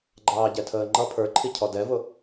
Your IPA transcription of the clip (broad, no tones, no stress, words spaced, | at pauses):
ɡ͡ǃɑːɟɛtʰəːŋ͡ǃʌ pʰə˞ǃʰicʰɔ dɛvʊ